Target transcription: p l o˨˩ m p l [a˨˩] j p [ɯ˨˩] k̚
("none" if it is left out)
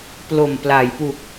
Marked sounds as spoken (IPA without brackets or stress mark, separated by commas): a˩˦, u˨˩